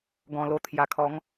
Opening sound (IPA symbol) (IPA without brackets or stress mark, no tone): ɡ